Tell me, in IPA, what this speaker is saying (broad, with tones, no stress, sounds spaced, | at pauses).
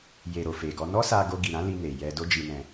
j e˨ ɾ o˨ f e˨ ɡ ɔ˧ n ɔ˦ s a˧ ɡ o˧ ɡ i˨ ɾ ã˨˦ l i˧ n e˨ j ɛ˧ d o˦ d͡ʒ i˧ n ɛ̃˧